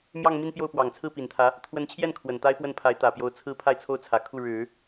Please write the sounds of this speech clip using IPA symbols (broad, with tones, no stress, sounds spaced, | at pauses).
m j ɑ˥˧ ŋ m i˥˧ n p j o˥˩ ʊ̯ p w ɑ˨˩ ŋ t͡sʰ ɹ̩˥˩ p i˨˩ n t̪ʰ ä˧˥ | t̪ʰ w ə˧˥ n t͡ɕʰ j ɛ˥˩ n kʰ w ə˨˩ n t̪ a˥ ɪ̯ p w ə˥˩ n pʰ a˧˥ ɪ̯ t̪ ä˨˩ p j o˧˥ ʊ̯ t͡sʰ ɹ̩˥ pʰ a˥˧ ɪ̯ t͡sʰ o˥˩ ʊ̯ t͡sʰ ä˨˩ kʰ u˥˩ ɻ ɻ̩˨˩˦